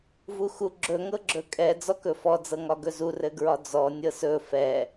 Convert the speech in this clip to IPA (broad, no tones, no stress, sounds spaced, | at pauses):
v u x u ɡ͡ǁ ɵ ŋ ɤ ɡ͡ǁ ɵ kʼ ɛ d͡z ɔ k ɵ f ɔ d͡z ɤ ŋ ɒ ɡ ɵ z u r ɘ ɡ ɹ ɒ d͡z ɔ nʲ ɤ s ɵ f ɛ